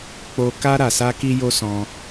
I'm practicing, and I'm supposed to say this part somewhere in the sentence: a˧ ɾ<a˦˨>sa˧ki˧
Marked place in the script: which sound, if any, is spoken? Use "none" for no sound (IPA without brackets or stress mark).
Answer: a˨